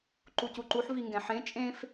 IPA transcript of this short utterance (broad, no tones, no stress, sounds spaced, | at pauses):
ǃ u c u ǃ u ħ v i ŋ ɡ ɛ̃ ħ ẽ t͡ʃʼ ẽ f